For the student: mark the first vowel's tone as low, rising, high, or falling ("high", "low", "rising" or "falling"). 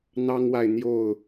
high